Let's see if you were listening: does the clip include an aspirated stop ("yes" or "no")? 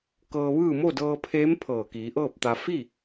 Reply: yes